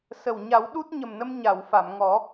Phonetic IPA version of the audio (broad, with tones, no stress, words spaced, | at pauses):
sə˨˩w ɲa˨˩˦wɗu˦˥t̚ɲə˨˩mnə˧m ɲa˨˩˨wfa˨˩˨mŋɔ˨˩˦